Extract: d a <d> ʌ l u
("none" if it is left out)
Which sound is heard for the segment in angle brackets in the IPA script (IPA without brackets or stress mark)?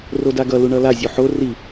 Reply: ɡ